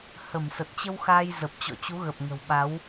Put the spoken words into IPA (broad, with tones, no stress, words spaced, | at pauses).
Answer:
hə˧˩m sə˨˩t̚t͡ɕə˧wxaː˧j zə˨˩p̚t͡ɕɔ̰˧˨t͡ɕu˨˦ ɣə˨˩p̚ŋə̤˨˩wɓa˨˦w